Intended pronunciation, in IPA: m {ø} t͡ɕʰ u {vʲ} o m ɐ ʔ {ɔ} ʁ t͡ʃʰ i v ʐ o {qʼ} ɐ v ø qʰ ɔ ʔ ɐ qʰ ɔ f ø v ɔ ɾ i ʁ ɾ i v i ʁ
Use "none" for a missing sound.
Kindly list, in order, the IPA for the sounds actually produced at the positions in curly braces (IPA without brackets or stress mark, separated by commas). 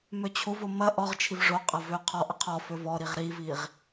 ø, v, ɔ, qʼ